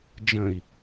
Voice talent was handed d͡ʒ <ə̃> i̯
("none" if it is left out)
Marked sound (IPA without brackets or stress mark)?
ə̃